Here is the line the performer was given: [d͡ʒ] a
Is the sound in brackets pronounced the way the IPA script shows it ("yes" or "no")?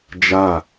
yes